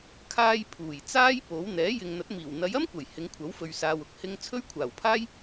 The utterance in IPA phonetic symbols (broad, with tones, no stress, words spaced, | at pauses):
kʰaː˧j pʰuː˨˩jt͡saː˥j po˨˥w n̪ɛː˨˥jɪ˨ŋn̪ɐ˨˥t̚ miː˨˩wn̪ɐ˨˧jɐ˥mkʷɐ˨˩j hɪ˨˧ŋkʷʰɐ˨˥wfɵ˨ɥsaː˨w ʊ˨˥k̚hɪ˧ŋ t͡sʰɵ˥ɥkʷʰaː˨˩wpʰaː˥j